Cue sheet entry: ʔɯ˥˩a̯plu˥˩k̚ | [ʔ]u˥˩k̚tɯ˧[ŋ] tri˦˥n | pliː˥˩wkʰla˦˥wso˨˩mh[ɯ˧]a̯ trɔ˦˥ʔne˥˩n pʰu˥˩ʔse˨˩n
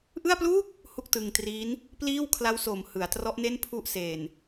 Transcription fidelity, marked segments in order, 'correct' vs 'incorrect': incorrect, correct, incorrect

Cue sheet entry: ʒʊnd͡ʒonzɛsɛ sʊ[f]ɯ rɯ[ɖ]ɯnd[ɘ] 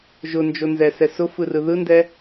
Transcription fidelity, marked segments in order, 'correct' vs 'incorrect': correct, incorrect, incorrect

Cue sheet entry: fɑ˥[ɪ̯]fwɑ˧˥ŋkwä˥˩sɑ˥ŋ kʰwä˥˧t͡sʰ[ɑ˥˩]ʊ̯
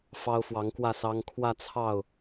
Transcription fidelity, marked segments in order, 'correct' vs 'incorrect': incorrect, correct

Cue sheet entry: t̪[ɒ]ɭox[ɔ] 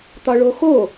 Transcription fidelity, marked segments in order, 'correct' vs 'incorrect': correct, incorrect

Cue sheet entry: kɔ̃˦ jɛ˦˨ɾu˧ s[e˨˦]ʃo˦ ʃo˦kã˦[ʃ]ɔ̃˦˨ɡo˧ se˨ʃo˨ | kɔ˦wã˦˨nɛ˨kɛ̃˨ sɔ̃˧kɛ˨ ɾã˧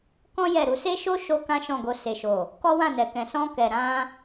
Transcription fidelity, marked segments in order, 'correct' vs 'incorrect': incorrect, correct

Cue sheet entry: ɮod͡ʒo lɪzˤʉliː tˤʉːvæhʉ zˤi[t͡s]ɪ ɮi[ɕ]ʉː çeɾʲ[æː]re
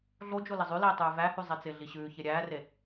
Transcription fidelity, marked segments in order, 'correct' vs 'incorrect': correct, correct, correct

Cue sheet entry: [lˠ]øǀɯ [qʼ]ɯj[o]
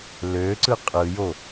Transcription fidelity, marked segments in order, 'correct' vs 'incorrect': incorrect, correct, correct

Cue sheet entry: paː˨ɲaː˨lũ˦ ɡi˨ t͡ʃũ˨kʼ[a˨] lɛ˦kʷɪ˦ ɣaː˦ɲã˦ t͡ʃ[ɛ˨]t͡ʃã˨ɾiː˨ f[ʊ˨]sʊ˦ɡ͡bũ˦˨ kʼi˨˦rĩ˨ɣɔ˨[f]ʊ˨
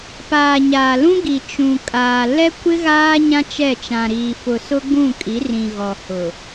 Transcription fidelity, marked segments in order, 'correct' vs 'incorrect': incorrect, incorrect, correct, incorrect

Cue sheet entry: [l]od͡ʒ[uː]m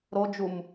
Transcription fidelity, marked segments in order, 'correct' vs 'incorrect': incorrect, incorrect

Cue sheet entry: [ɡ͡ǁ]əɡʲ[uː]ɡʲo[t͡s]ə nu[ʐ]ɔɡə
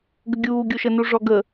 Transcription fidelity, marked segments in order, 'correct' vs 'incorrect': incorrect, correct, incorrect, correct

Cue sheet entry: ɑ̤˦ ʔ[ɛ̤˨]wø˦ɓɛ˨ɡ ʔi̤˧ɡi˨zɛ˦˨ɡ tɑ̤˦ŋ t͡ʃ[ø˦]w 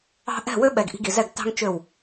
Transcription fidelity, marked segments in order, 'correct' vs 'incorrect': incorrect, incorrect

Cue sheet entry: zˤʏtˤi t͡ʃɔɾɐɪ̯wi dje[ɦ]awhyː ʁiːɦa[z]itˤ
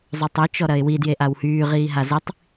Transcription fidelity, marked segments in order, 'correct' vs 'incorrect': incorrect, correct

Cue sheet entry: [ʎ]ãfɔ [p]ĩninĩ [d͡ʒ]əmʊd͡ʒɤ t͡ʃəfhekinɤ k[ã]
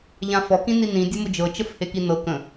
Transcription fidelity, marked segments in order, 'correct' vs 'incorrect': correct, incorrect, incorrect, incorrect

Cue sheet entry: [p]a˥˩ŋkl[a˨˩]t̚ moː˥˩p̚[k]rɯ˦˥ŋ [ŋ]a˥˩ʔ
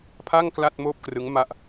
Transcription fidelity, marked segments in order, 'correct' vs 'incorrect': incorrect, incorrect, correct, incorrect

